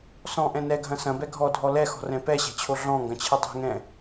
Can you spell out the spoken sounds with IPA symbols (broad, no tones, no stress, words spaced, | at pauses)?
sɔ̃ʔɛ̃ nɛɡʱɐ̃ sɐ̃bɛ ɡʱɔdʱɔ lɛxɔ̤rɛ̃ pɛɕɛ̤t͡ɕʰo ɮɔ̃ŋɡɐ̃t͡ɕʰɨ dˤɛ̤ŋɛ̃